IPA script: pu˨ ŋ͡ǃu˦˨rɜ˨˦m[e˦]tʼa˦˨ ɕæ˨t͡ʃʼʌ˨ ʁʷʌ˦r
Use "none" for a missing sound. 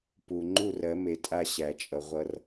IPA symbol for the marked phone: e˨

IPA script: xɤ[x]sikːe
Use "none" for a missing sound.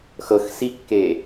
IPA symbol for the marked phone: x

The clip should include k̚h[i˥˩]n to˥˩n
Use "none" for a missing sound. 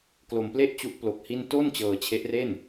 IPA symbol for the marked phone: i˥˩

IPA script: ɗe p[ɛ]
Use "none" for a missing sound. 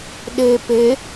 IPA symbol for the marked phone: e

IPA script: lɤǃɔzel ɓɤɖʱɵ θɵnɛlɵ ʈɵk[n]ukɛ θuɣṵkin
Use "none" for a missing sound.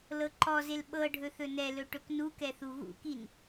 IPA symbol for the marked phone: n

